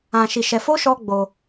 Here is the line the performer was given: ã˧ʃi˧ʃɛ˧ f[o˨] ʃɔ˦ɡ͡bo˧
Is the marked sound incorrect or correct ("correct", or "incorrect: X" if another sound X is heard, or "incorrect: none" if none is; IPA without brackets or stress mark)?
incorrect: o˦